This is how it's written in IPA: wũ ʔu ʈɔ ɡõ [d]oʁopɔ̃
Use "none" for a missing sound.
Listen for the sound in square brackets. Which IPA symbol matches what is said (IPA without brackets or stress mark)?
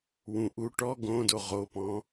d